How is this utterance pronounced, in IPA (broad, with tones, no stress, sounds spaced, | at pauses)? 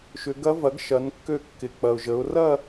ʃ ʏ˩˧ ɡ ɐ˧˥ v ɐ˩˥ ɡ ʃ ɐ˩˧ n kː ø˧˩ kː ɪ˩ k͡p ɐ˩ ʊ̯ ʒ ə˩˧ ʊ̯ r ɐ˥˧